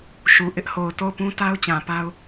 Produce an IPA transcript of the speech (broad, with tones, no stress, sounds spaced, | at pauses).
ʃ u˨ ʔ ɪ˦ ʔ h o˨ ʊ̯ t o˦˨ ʊ̯ p ũ˦ t a˦ ʊ̯ t͡ɕ ã˨ p a˦ ʊ̯